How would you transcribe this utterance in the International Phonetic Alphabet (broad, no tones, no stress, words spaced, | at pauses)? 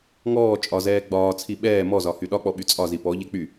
ŋɔː t͡ʃʼɒzɛː ɡ͡bɒːt͡sʰi ɓɛː mɔzɒhy ɗɒk͡pɔɓy t͡sʼɒzi pɔʎe k͡py